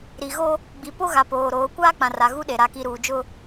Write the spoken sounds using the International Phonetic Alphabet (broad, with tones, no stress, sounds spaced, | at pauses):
ɾ i˨ ɣ o˦ | ɡ͡b i˨ p o˦ ɣ a˨ p oː˨ ɾ oː˨˦ kʷ aː˦ k͡p ã˨ r a˨ ɣ u˦ ɗ e˨ ɾ a˨ k i˨ ɾ uː˨ d͡ʒ ʊ˦